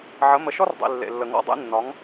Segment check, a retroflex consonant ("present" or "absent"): absent